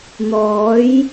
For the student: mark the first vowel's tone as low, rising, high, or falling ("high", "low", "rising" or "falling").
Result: rising